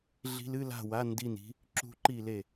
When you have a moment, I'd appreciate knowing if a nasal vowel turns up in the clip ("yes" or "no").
no